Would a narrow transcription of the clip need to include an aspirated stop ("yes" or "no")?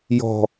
no